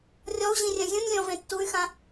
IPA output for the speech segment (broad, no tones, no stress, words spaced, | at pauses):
rʲɔu̯ʑĩrʲœ̃ zʲũnʲlʲɔ̃vẽ tːuy̯xã